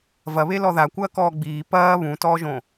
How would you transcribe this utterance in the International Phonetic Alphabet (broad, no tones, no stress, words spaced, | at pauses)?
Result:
vɐβe lɔðakʷɐː kɔːɡ͡biː pɐː βũtɔːʒõ